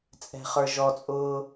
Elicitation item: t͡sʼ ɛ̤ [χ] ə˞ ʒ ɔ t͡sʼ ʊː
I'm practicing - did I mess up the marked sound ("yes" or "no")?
no